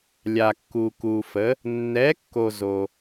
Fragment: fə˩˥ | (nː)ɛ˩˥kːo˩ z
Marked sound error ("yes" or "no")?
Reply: no